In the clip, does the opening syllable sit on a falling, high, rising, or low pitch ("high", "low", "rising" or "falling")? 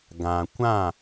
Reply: low